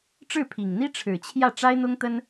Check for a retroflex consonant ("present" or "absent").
present